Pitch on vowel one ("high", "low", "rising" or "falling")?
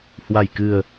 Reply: low